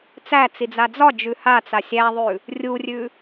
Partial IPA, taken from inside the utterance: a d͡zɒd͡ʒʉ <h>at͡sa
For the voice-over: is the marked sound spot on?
yes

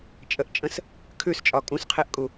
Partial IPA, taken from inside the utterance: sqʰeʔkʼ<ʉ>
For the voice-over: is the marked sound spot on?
no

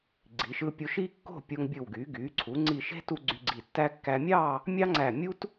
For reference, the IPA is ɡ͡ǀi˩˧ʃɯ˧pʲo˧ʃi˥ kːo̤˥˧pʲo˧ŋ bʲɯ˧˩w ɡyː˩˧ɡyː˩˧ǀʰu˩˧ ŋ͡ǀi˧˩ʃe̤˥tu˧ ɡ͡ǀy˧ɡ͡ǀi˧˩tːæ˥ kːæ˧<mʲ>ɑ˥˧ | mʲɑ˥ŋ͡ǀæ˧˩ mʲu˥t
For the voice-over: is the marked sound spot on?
yes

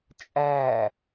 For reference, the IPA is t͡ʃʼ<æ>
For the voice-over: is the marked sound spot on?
yes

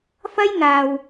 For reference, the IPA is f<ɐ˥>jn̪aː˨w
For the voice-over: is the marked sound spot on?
yes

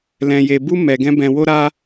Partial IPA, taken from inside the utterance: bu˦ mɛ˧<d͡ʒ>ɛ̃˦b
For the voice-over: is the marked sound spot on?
no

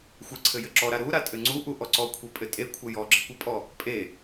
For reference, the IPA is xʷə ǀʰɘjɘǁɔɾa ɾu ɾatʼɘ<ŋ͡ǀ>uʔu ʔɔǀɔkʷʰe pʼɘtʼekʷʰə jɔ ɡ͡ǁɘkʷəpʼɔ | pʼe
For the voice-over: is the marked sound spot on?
yes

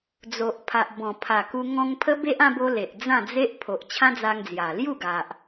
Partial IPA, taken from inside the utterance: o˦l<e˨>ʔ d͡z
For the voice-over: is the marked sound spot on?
yes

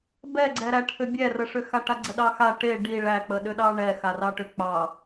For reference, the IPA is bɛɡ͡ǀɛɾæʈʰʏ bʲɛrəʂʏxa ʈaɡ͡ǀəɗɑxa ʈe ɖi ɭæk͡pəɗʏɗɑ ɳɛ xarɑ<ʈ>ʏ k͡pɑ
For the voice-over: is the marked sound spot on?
yes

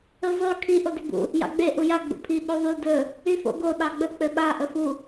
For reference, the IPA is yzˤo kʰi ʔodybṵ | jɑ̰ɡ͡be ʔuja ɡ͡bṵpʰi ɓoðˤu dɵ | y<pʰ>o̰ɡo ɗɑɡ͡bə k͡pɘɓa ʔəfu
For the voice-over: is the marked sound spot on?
no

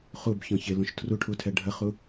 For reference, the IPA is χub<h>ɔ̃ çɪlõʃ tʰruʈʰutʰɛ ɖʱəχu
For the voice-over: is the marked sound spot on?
no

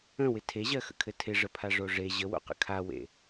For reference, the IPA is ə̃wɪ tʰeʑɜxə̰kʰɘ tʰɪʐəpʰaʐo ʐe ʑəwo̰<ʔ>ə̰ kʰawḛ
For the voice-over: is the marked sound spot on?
no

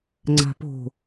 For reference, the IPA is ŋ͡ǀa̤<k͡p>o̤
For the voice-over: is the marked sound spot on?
no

